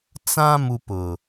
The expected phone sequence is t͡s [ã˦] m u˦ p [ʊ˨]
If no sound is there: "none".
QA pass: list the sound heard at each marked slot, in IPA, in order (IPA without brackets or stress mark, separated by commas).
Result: ã˦, ʊ˨